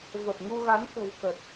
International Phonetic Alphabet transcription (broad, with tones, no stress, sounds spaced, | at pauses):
v ə˨˩ p̚ ŋ u˧ ɣ a˨˦ n k ə̤˨˩ w k ə˨˩ t̚